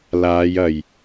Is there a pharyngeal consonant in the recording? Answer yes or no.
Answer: no